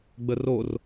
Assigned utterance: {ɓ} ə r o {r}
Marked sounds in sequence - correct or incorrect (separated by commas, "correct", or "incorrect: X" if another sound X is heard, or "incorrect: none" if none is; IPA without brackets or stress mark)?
incorrect: ɡ͡b, correct